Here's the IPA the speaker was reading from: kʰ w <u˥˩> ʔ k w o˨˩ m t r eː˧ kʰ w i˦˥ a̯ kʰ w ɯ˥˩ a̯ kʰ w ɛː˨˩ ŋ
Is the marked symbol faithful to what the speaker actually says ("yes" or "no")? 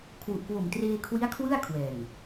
no